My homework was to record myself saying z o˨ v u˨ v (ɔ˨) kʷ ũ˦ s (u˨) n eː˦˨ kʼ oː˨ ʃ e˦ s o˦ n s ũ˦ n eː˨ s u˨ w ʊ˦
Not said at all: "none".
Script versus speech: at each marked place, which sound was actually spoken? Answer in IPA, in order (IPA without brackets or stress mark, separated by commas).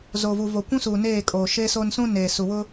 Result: o˨, u˨